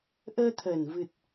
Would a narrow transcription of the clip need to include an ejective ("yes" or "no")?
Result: no